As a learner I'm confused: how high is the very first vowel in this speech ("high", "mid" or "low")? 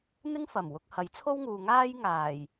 high